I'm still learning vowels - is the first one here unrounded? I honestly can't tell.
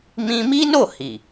yes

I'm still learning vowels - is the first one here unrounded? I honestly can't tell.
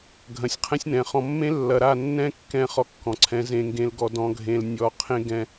yes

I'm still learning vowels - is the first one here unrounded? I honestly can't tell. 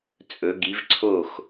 no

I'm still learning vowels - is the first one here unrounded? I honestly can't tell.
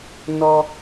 no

